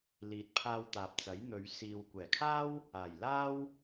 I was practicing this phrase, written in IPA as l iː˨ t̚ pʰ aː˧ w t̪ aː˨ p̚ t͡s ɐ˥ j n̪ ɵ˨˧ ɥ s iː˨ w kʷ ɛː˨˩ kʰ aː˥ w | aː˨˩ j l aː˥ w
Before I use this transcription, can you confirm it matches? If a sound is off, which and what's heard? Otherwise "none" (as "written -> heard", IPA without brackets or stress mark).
ɐ˥ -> ɐ˨˥